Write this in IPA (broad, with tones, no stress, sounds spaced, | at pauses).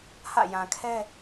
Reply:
h ä̰˦˨ j ã˨ kʰ ɛ˦